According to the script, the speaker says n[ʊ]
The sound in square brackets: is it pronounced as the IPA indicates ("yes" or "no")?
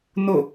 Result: yes